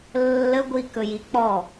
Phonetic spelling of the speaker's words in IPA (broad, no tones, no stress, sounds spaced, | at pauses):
lː ə ɡʷ i k ɵ j i k͡p ɔ